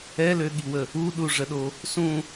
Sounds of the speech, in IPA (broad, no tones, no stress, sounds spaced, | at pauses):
ɛ l ø ɠ i w ə | u ɗ u ʐ ə ɗ o | s ũ